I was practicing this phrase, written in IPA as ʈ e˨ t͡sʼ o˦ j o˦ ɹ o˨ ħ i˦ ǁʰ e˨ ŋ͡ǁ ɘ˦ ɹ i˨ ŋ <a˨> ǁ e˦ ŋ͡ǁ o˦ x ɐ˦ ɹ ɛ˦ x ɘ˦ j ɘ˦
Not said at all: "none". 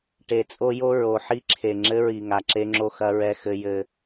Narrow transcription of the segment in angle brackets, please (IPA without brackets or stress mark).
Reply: a˨